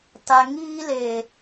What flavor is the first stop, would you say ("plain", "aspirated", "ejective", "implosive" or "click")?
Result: plain